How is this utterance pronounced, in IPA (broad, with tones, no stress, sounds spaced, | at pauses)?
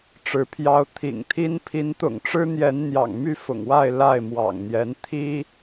ʈ͡ʂ ɻ̩˨˦ pʰ j ɑ˦ ʊ̯ t̪ʰ ḭ˨˩ ŋ t̪ʰ i˦ n pʰ i˨˦ n t̪ ʊ̰˨˩ ŋ ʈ͡ʂ ɻ̩˦ n̪ j ɛ˨˦ n n̪ j ɑ̰˨˩ ŋ m y˥˨ f ʊ̰˨˩ ŋ w a˥˨ ɪ̯ l a˥˨ ɪ̯ m w ɑ̰˨˩ ŋ n̪ j ɛ˨˦ n t̪ʰ i˦